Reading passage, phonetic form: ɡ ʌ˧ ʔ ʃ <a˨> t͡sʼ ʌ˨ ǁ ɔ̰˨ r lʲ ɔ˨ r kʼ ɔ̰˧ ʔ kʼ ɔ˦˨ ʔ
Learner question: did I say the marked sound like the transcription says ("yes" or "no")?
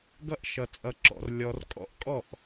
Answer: no